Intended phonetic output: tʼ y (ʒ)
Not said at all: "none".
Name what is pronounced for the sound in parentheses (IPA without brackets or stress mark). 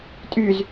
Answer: z